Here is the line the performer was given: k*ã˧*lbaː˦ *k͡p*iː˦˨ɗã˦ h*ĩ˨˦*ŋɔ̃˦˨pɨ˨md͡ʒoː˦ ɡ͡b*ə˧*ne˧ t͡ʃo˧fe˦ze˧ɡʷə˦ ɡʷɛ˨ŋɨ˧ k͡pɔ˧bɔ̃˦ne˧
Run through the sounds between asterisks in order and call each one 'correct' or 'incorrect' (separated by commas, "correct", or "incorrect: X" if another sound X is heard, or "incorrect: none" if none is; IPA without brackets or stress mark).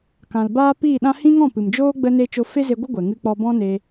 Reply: incorrect: ã˨, incorrect: p, incorrect: ĩ˦, correct